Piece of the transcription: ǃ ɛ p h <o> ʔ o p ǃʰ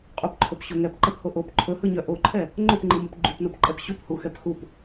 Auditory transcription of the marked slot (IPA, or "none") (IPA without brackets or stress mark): o